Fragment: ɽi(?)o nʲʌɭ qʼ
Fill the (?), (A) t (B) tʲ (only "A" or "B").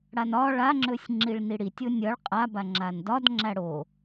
B